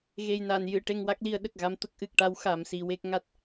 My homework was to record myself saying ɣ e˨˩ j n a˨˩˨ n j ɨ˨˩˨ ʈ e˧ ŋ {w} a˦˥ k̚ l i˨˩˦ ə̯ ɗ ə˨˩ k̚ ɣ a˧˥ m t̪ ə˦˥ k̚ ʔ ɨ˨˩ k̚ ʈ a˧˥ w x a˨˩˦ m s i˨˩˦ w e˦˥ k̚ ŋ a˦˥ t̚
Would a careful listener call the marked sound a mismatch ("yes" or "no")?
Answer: no